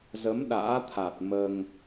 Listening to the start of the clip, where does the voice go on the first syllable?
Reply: rising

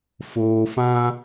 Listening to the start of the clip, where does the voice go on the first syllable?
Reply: low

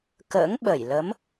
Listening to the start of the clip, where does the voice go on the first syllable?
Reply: rising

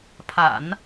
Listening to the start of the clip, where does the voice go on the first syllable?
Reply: low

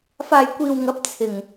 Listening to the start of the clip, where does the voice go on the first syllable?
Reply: low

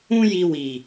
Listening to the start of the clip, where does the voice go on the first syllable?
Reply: high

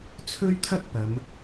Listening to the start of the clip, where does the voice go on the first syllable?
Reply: high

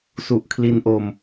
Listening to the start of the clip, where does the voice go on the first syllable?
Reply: low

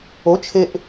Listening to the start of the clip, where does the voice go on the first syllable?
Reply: rising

